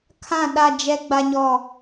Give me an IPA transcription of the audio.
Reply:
kʰã˦˨ ɗa˦˨d͡ʒɛ˦ ɡ͡ba˦ɲɔ˦˨

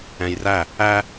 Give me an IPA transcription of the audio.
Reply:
ɛ̃jræ | æ

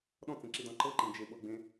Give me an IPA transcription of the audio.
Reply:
ɗɔ̃t͡sẽǁidɔ̃ ǃɤǃĩ d͡ʒeɓɤɡ͡bẽ

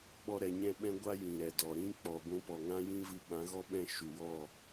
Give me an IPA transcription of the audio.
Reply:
ɓɔ˦ɾɛ˧ ɲɛ̃˦ɓɛ̃˦ɡʷa˦ jĩ˨ɾɛ˨dɔ˨ɾĩ˦ k͡pɔ˨ɡʷũ˧pɔ˨ ŋã˦jĩ˦ vɨ˧ɓã˨˦ɣɔ˦ ɓɛ̃˧ ʃu˨wɔ˦˨

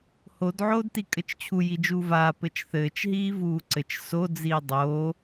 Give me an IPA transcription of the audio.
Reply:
hodʕoːd tikʼɘt͡ʃt͡ɕʰu jid͡ʒuːvaː pɘt͡ʃθɘːt͡ʃɦiː vuːǀɘt͡ʃ sod͡ziː dˤoː

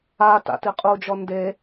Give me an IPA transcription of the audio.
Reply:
a ta̰tiqʼud͡ʒɔ nde

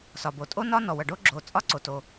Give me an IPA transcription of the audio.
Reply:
sɒ˩bo˩tʼo˥nɒ˥ nɔ˩wɐ˩ɖo˥ɡ͡ǁoː˩ t͡sʼɒ˥ǀo˩to˩

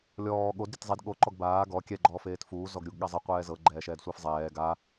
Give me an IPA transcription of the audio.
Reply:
lʲɔː ɠod ɾʲetzˤid ɠo ǃɔɡbaː ɡɔ kʲɛɡ͡ǃɔːf eːtfuːzɔɡ ɾʲuɡɠazˤe qʷɛːzɤ ɡ͡ǃɛːʃɛːdsʷefzˤɛː ɡa

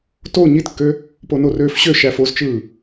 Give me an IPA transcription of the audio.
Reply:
to ɲitkːø | ponorøːfɕø ʃæfozt͡ʃɯː

